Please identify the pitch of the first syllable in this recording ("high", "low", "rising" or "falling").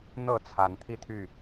falling